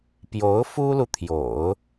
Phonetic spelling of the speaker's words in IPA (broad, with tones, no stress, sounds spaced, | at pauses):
p j o˧˥ ʊ̯ f u˥ l u˨ t̪ʰ j o̰˨˩˦ ʊ̯